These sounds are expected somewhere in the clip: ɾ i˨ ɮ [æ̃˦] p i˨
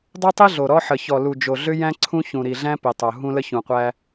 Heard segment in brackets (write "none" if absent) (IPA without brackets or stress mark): æ̃˦